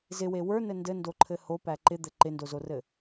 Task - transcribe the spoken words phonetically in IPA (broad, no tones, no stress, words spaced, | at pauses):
zɪwe wə˞nɘ ndɘndoǃʰɘ hopæ ǃɪd̪ɘ ǃɪndozorɘ